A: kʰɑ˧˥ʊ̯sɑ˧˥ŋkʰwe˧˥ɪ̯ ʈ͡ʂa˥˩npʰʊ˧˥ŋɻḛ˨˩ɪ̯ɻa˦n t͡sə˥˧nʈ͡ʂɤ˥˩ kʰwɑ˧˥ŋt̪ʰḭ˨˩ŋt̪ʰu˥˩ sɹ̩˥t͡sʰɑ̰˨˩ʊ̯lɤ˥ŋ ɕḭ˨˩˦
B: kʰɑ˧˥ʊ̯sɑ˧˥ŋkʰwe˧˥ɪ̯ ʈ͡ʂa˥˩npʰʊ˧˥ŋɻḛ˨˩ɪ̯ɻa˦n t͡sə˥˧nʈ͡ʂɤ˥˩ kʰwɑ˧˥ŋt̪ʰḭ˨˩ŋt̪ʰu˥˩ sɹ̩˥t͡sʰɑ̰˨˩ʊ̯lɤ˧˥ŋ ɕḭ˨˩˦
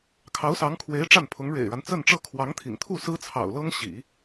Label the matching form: A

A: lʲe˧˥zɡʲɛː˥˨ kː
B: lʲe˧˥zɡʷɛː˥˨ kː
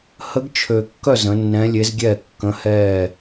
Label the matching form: A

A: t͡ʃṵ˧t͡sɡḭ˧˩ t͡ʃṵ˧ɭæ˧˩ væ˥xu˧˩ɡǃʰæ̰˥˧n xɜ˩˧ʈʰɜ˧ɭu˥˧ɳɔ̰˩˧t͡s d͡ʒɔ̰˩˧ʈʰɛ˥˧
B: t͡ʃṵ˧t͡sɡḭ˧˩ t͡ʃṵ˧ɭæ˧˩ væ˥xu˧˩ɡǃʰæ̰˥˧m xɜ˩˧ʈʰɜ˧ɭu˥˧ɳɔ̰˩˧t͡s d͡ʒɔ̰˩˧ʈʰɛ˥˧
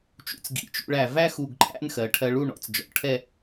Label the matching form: A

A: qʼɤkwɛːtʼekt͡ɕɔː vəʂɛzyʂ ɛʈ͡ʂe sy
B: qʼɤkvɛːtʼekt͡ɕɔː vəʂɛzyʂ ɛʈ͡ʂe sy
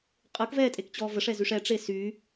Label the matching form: B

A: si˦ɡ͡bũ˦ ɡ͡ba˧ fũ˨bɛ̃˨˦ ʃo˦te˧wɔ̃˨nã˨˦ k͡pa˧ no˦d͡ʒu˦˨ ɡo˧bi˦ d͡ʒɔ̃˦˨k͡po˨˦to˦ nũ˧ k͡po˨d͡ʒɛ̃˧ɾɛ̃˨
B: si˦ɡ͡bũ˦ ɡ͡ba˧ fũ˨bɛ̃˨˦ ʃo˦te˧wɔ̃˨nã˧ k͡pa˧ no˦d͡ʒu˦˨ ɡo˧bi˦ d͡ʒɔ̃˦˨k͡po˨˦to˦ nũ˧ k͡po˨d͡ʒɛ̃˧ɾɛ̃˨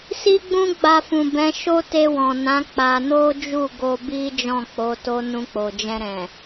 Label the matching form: A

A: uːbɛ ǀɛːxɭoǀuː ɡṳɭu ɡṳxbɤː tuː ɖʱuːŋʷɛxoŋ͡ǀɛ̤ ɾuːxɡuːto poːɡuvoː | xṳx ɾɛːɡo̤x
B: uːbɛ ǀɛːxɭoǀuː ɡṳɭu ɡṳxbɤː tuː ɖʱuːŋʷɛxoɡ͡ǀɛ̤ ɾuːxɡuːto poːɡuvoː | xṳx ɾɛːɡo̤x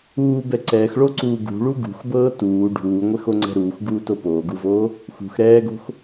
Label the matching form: A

